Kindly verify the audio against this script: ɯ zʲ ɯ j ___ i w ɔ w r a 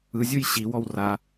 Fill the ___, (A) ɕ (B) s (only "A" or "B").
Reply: A